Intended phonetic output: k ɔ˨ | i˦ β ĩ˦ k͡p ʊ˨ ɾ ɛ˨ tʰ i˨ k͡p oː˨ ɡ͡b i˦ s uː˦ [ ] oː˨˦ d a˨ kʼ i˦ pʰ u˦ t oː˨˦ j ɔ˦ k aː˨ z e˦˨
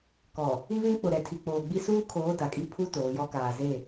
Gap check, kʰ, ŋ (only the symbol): kʰ